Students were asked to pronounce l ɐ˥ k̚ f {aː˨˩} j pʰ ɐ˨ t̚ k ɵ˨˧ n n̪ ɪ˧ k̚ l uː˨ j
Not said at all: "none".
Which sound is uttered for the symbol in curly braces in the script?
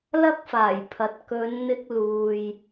aː˨˩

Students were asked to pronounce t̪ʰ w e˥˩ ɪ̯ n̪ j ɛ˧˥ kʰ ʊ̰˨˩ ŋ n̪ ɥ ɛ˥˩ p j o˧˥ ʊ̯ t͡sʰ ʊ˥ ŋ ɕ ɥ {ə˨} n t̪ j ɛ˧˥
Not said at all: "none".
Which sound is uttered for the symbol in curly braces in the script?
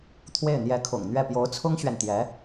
ɛ˨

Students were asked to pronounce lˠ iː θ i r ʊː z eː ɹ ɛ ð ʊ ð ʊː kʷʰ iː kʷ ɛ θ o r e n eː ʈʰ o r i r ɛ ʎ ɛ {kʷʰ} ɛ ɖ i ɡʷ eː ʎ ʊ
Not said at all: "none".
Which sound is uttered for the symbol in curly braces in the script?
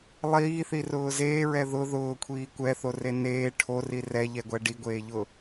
ɡʷ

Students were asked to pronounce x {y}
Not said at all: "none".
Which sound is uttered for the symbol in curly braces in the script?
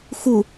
u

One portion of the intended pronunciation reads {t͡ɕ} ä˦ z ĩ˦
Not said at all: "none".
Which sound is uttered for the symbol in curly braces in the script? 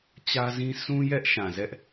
t͡ɕ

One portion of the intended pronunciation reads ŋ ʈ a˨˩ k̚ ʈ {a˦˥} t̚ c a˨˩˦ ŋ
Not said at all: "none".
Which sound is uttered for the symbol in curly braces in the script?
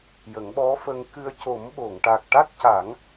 a˦˥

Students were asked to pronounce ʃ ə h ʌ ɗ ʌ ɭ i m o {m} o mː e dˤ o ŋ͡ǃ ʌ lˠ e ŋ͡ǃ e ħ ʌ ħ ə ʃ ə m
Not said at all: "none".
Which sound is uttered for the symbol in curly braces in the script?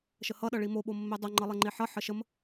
ɓ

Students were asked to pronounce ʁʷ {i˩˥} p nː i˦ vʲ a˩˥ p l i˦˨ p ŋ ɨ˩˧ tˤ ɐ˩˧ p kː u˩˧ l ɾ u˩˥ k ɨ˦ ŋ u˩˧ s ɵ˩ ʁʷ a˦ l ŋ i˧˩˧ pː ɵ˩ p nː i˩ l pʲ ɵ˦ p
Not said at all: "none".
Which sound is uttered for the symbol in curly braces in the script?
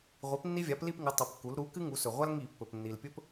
i˩˥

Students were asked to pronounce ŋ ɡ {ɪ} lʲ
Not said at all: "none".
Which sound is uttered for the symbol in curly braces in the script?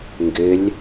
ɪ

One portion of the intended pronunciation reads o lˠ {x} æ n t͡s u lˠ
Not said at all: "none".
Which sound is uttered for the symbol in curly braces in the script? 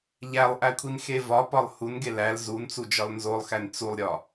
x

